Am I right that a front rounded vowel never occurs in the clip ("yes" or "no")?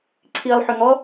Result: no